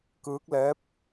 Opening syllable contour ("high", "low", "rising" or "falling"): rising